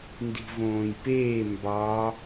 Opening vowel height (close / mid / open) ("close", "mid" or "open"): close